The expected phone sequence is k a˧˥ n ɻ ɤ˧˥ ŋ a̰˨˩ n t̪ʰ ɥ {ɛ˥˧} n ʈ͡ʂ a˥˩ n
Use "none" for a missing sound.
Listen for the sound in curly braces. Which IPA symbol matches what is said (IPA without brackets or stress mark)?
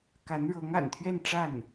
ɛ˥˧